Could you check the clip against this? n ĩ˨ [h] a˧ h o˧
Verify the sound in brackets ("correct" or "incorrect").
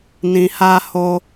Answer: correct